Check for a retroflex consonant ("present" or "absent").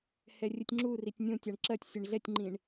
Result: present